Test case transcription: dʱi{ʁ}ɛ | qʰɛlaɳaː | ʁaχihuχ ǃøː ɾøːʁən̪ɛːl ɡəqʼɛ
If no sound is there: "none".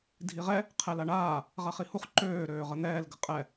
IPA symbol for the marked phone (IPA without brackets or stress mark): ʁ